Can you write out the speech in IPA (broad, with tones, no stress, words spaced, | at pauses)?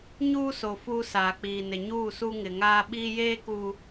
ɲuː˦so˨ fuː˦saː˨k͡piː˨nɪ˨ ɲuː˦˨su˦ŋɪ˨ŋaː˦ ɓiː˦jeː˦kuː˨